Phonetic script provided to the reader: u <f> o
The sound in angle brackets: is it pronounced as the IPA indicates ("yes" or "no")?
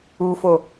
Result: yes